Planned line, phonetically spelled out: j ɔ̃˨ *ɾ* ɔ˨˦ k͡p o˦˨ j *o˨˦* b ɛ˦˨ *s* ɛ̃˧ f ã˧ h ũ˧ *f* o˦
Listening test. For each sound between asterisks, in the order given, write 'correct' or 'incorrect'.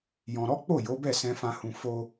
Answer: correct, correct, correct, correct

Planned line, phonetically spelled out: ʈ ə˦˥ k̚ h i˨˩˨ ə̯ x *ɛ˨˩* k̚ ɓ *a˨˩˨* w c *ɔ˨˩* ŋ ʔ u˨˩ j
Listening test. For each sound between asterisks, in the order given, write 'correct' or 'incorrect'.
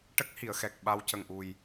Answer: correct, incorrect: a˧, incorrect: ə˨˩

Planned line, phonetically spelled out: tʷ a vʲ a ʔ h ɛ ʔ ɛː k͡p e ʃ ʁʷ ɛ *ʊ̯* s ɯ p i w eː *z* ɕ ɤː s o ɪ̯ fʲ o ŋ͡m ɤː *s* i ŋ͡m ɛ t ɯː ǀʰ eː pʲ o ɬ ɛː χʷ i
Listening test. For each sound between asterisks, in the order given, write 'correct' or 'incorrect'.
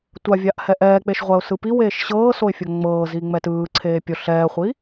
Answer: correct, incorrect: ʃ, incorrect: z

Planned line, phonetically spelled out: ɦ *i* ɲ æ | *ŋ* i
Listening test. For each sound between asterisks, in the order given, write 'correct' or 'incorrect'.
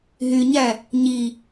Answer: incorrect: y, incorrect: ɲ

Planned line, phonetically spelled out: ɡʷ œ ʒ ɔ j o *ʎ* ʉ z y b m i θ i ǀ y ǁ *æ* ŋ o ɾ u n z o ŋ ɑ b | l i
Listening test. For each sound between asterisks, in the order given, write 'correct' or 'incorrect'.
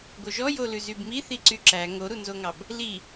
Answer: incorrect: l, correct

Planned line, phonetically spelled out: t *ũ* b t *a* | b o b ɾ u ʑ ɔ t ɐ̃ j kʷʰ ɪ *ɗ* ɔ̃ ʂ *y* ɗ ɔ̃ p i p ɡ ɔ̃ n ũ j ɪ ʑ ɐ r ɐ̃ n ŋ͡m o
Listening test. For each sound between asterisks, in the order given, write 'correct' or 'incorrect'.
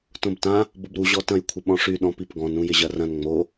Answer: incorrect: õ, incorrect: ã, incorrect: ɓ, correct

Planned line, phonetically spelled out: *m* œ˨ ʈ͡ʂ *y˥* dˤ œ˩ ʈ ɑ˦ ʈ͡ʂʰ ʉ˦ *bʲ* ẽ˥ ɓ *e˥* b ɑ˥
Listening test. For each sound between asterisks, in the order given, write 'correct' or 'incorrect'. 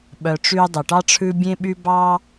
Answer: incorrect: ɓ, incorrect: y˦, correct, incorrect: y˥

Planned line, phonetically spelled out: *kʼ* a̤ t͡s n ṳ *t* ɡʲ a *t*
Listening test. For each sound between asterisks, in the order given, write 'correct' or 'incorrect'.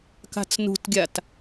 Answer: incorrect: k, correct, correct

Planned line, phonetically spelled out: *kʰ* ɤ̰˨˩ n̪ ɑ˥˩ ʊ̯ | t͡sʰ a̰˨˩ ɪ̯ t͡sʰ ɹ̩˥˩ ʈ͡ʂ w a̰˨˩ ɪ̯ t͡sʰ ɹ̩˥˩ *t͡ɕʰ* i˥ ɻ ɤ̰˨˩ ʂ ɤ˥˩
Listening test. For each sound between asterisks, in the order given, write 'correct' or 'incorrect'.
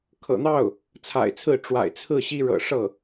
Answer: correct, incorrect: ɕ

